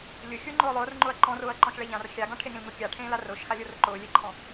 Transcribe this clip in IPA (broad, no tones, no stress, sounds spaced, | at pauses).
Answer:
lʲ ʊ xʲ ʊː ŋ͡ǃ ʊː lˠ ʊː r ŋ͡ǃ ʊ ɐ̯ ǃ ɔ̃ r ʊː ɐ̯ ǃ ɔ̃ ʃ ɭ e ʎ ã r xʲ a ɡ ɔ̃ ʈʰ e ŋ ẽ l ŋ ʊ kʲ a ʈʰ ẽː l a r ʊː ʃ x a lʲ ʊ r ʊ ǃ ʊː lʲ e ǃʰ ɔ̃